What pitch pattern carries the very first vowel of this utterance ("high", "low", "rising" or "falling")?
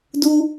high